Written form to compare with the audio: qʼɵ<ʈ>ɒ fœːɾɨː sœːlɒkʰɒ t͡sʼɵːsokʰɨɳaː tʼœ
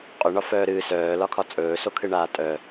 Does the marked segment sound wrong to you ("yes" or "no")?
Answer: yes